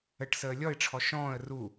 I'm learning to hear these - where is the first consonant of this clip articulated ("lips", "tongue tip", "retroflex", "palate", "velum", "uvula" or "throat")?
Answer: retroflex